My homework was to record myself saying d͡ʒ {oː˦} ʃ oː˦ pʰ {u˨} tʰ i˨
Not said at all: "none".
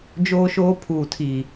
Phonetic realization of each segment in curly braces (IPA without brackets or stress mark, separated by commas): oː˦, uː˨